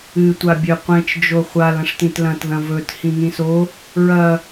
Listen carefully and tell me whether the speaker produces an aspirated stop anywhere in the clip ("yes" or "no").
no